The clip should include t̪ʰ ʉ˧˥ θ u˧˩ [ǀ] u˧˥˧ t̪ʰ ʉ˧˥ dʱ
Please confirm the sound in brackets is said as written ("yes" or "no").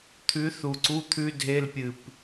yes